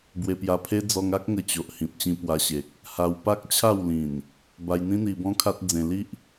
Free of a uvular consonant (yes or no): yes